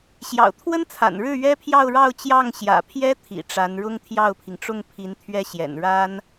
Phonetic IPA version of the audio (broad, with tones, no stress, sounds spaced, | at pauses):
ɕ j ɑ̰˨˩ ʊ̯ t̪ʰ w ə˥ n t͡sʰ a̰˨˩ n ɻ ɻ̩˥˩ ɥ ɛ˥ pʰ j ɑ˥˧ ʊ̯ ɻ ɑ˥˧ ʊ̯ t͡ɕ j ɑ˥˩ ŋ ɕ j ä̰˨˩ pʰ j ɛ˥ t̪ʰ ḭ˨˩ ʈ͡ʂ a˧˥ n ɻ ʊ˥ ŋ t̪ʰ j ɑ˥˩ ʊ̯ pʰ i˩ ŋ ʈ͡ʂ ʊ˥˩ ŋ pʰ i˧˥ n t̪ʰ ɥ ɛ˥ ɕ j ɛ̰˨˩ n ɻ a˥ n